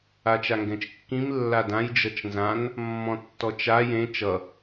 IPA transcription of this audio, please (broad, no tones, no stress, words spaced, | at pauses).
at͡ʃaŋɡɛ̃t͡ʃkːĩm lːadãj d͡ʒʌt͡ʃnzãn | mːɔ̃tːɔt͡ʃa jẽ t͡ʃʌ